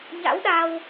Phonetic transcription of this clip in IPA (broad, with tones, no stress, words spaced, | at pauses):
ɲa̰˧˥wɗa˧w